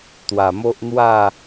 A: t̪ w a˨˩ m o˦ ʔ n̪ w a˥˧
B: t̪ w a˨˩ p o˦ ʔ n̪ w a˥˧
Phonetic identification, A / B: A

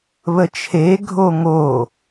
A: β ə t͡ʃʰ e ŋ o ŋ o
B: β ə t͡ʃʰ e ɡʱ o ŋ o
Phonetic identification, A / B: B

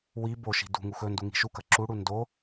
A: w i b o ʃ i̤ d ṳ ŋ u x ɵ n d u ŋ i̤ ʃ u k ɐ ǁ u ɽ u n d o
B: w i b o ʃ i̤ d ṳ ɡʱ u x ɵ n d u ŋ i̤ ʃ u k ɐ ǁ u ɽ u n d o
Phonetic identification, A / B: A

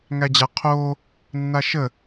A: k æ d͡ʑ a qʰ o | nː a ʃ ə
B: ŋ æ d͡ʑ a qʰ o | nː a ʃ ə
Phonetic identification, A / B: B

